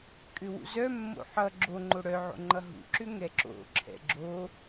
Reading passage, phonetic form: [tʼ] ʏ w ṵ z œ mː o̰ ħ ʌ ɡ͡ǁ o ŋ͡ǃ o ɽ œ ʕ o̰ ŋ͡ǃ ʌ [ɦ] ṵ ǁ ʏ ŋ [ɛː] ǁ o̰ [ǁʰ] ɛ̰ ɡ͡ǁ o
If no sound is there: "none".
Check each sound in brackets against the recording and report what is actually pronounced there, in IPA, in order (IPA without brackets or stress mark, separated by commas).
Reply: kʼ, ɦ, ɛ, ǁʰ